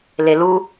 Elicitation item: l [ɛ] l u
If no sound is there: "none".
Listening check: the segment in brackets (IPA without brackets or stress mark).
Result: e